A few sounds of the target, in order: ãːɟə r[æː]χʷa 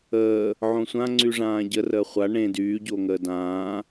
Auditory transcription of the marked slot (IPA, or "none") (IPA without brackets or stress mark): əː